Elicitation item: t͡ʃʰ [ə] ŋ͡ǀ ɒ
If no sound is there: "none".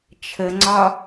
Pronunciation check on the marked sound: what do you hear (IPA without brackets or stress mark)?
ə